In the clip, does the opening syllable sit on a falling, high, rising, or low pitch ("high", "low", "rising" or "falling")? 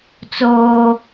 high